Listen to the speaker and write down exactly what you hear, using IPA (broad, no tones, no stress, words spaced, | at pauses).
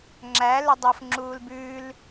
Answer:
ŋ͡ǁæ lɵdˤof ŋ͡ǁuːlbʉːl